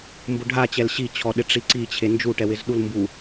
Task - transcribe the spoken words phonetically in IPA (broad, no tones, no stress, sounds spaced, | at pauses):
m b ʊ ɖʱ a t͡ɕ ɛ l ɕ i t͡ɕʰ ɔ ɗ ɪ ʈ͡ʂ i ǀ i t͡ɕʰ e n d͡ʒ u ʈ ɛ w ɪ z ɗ u l m b u